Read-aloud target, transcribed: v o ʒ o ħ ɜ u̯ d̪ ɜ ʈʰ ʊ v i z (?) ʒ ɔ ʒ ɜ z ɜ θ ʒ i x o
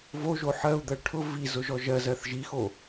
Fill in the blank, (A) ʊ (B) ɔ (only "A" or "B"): A